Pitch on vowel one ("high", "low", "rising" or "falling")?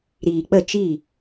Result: low